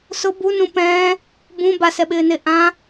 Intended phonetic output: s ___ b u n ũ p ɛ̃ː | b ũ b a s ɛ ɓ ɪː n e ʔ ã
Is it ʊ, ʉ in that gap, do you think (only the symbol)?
ʊ